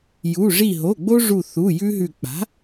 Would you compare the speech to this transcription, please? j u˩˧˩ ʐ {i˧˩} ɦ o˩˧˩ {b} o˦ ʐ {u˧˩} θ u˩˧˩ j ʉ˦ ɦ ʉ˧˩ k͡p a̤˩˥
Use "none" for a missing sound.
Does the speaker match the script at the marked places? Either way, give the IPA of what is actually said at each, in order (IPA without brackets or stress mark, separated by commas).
i˧˩, ɡ͡b, u˧˩